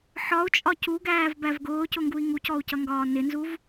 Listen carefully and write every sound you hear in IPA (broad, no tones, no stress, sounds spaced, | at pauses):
ħ ɒ u̯ t͡ʃʼ ɒ c u ɡ æː v b æ v ɡ ʊː c ʊ ŋ ɡ u i̯ ŋ u c ɔ u̯ c ʌ ŋ ɡ ɒː n ɪ n z u v